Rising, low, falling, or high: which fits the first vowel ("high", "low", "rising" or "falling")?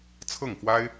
falling